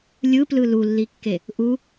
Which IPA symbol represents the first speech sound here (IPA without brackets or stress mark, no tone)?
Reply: lʲ